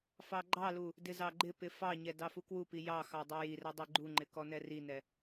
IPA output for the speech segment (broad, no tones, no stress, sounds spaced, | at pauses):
f ɑ ɡ͡ǃ ɑ l u | d ɪ z ɑ ɡ͡ǃ ɪ p ɪ f ɑ ɲ ɛ d ɑ f u k w u p i j ɑ x ɑ dˤ ɛ j i r ɛ dˤ i ɡ͡ǃ u ŋ͡ǃ ɪ k ɔ n ɛ r i n ɛ